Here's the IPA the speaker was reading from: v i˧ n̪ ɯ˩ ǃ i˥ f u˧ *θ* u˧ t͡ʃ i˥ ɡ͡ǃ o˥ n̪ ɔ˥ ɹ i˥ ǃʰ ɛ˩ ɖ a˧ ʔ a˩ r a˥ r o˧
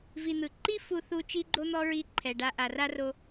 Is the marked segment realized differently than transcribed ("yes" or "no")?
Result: no